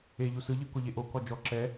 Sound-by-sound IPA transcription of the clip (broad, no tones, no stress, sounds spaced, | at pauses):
e ʎ u s ɯ ʎ ɯ k o ʎ e ʔ o k ɔ d͡ʒ ɔ ǁ ɛ